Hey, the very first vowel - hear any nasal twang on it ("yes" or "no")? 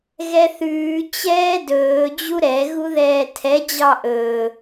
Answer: no